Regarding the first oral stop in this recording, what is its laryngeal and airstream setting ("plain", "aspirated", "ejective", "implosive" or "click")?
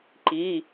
click